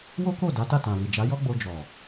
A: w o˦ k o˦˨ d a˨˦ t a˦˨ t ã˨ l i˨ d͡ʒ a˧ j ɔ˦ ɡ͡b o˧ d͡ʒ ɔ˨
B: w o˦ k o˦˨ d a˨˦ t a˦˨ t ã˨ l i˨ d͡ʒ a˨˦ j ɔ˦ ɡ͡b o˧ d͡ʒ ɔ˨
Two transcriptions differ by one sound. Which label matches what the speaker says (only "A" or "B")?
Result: B